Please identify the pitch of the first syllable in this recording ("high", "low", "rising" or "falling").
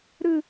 falling